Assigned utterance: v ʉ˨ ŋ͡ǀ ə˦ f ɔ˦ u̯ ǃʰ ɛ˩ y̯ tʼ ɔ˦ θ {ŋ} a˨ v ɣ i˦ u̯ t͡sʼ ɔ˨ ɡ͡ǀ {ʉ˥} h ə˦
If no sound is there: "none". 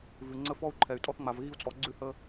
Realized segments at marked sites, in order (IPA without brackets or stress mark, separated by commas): ŋ͡m, ʉ˥